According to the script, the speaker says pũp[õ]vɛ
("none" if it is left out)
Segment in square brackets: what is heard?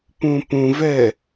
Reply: ũ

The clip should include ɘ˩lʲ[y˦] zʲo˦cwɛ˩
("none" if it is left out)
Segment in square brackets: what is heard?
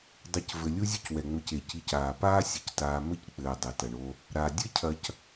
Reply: u˦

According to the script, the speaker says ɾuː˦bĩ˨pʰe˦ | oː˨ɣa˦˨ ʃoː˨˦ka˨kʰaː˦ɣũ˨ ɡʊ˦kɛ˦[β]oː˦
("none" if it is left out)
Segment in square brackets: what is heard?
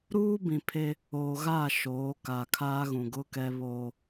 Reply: β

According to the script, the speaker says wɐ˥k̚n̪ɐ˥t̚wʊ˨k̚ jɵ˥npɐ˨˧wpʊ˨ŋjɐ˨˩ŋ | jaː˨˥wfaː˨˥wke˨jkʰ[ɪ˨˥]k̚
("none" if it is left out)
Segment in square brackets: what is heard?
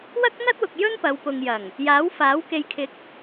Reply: ɪ˨˥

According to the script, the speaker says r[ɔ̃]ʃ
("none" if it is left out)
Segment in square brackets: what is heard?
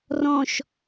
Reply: ɔ̃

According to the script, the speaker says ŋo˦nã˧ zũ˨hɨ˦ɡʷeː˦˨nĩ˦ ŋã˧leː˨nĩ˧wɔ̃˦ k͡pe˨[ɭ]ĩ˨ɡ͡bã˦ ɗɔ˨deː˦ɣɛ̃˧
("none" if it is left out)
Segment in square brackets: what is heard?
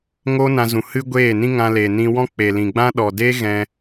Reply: l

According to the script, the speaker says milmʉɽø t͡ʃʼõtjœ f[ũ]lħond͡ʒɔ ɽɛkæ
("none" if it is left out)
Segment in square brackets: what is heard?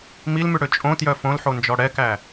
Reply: õ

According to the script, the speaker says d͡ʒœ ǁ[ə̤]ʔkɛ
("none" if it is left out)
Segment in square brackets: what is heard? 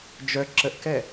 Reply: ə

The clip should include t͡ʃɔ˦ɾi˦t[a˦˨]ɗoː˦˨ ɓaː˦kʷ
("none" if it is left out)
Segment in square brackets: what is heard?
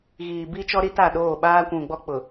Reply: a˦˨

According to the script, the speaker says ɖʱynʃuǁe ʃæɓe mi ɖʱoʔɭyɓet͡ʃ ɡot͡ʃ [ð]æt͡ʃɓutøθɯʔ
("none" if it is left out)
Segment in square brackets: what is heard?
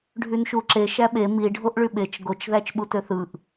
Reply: ð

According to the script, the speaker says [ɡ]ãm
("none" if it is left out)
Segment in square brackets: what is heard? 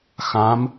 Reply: x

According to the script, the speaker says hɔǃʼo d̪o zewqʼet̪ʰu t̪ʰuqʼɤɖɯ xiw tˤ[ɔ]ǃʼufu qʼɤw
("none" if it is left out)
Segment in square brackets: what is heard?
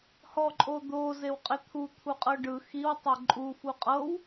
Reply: ɤ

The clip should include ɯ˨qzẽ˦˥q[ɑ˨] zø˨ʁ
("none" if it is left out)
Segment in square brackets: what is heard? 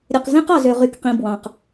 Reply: ɑ˨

